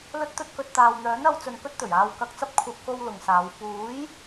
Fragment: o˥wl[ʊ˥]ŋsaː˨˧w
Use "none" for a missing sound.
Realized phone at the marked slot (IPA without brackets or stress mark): ʊ˨